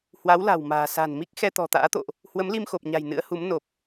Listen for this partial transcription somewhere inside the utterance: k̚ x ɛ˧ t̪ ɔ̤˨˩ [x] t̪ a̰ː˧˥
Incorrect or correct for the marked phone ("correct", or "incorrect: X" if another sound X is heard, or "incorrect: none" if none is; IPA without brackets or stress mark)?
incorrect: none